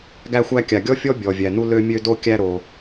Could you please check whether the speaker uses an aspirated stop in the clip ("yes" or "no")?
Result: no